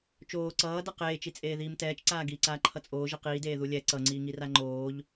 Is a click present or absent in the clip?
present